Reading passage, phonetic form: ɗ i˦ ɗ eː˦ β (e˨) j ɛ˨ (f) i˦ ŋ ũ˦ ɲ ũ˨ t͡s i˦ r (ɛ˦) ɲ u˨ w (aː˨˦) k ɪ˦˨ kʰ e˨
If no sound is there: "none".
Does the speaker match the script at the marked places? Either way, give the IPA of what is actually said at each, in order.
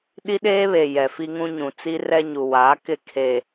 e˨, f, ɛ˦, aː˨˦

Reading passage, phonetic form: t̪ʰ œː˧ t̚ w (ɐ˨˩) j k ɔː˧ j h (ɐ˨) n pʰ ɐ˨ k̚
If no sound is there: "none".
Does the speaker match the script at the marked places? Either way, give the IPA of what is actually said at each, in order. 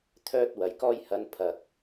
ɐ˨˩, ɐ˨˧

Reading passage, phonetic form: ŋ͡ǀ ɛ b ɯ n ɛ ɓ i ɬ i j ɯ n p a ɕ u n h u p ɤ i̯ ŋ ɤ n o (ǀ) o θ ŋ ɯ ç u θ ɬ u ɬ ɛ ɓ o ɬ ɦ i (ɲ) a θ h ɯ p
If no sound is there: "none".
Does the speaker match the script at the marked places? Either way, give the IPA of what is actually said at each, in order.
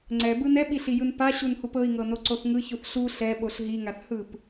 ǀ, ŋ

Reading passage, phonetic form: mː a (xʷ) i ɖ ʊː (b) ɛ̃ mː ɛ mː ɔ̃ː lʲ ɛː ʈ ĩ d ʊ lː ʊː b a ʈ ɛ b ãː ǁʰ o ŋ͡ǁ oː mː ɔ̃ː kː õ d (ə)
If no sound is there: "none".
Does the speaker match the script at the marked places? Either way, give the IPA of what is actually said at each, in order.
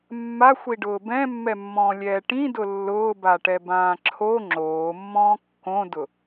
xʷ, b, ʊ

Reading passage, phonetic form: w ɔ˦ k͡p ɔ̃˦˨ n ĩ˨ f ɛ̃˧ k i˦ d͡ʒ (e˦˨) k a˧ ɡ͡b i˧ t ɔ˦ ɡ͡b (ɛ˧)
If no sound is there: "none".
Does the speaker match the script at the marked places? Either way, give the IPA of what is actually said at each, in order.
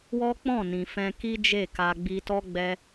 e˦˨, ɛ˧

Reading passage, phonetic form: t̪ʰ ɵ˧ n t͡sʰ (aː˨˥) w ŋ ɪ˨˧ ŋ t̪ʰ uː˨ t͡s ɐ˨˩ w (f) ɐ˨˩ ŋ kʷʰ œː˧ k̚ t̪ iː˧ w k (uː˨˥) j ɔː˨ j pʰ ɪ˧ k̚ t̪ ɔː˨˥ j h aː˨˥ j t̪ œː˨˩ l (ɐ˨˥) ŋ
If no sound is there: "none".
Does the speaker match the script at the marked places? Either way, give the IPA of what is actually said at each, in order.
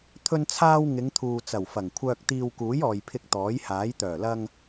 aː˧, f, uː˨˥, ɐ˧

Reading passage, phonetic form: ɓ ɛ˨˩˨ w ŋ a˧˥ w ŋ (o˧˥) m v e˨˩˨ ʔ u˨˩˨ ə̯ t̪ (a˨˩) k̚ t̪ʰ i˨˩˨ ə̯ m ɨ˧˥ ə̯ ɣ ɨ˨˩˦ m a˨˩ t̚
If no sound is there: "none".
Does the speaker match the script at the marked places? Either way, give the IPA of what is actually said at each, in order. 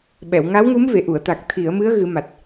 u˧˥, a˨˩

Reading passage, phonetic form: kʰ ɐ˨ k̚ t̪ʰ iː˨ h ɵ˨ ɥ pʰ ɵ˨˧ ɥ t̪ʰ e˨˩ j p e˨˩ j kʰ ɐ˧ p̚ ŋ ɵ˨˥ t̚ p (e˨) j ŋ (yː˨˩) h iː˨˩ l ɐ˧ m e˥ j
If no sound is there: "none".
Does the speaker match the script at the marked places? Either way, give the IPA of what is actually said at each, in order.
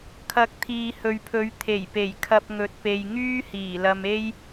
e˨, yː˥

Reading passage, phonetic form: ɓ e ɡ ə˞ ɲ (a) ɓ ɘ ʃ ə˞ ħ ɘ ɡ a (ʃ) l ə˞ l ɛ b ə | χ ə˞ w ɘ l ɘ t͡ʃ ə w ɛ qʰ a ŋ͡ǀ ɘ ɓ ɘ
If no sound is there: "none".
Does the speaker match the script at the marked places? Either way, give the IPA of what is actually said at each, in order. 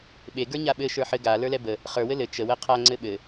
a, none

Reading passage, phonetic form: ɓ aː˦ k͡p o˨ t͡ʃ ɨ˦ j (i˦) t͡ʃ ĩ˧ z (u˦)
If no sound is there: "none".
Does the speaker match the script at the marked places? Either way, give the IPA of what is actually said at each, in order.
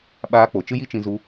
i˦, u˧

